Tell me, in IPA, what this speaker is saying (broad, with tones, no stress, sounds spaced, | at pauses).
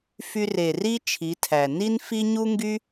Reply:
f y˧ r e˨ r i˦ t͡ʃʰ i˨˦ tʰ æ˨ n i˦ n f i˦ ɲ u˦ ŋ ɡ y˦